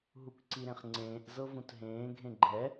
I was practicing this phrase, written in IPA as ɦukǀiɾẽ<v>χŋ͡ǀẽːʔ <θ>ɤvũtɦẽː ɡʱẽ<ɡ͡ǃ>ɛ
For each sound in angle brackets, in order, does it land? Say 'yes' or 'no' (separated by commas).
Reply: no, no, yes